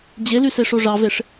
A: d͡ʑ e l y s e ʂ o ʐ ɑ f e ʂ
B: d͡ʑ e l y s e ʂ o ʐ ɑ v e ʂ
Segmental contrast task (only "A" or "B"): B